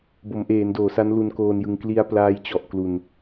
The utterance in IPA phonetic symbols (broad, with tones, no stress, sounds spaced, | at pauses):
b o˩˦ m ʔ eː˩˦ n d oː˩˦ s a˦˥ n l u˧ n k oː˧ n j ɯ˧ ŋ k l i˧ a̯ p l aː˦˥ j t͡ɕ ɔ˨˩ ʔ k l u˧ n